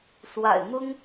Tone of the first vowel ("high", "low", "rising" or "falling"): low